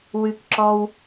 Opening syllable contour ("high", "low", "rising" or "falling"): high